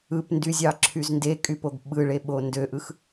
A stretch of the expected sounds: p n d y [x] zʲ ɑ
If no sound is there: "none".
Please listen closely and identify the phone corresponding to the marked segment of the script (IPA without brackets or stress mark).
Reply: none